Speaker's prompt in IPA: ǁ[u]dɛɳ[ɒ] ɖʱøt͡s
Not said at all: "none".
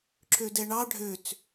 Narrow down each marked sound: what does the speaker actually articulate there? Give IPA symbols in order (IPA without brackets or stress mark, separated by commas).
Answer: ø, ɑ